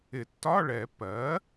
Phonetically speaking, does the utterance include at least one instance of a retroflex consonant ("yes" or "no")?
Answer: yes